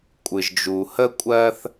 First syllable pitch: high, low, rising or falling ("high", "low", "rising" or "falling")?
low